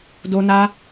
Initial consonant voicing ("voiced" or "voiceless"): voiced